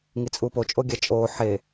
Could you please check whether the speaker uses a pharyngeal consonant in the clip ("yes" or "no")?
yes